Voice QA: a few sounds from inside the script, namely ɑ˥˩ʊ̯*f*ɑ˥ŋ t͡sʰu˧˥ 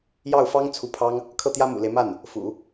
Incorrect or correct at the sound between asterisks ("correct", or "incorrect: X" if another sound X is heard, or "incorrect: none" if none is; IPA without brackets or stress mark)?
correct